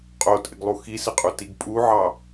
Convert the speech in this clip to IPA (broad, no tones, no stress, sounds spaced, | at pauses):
qʼ o tʼ ɪ ɡ lˠ u x i s ɪ qʼ u t i ɡ pʼ u ʕ ɑ